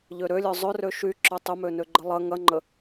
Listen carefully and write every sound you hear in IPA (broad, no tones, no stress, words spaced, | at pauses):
ʎøɾølʲœ zˤørø ʃy ǁœtˤʏmø nøɡ͡ǃəlˠɐ ŋɐŋ͡ǃə